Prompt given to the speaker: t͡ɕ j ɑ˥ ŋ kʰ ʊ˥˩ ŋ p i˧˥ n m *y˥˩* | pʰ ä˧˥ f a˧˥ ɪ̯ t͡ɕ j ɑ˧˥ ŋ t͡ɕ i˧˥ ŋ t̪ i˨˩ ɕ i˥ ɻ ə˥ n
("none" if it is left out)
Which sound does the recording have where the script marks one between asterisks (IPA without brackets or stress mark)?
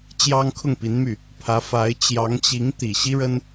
y˥˩